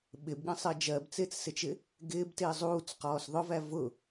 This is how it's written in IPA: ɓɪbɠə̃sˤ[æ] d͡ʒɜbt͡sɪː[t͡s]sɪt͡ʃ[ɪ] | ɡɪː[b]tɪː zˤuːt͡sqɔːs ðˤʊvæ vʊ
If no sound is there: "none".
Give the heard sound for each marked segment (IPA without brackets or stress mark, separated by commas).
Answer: ɜ, t͡s, ɪ, b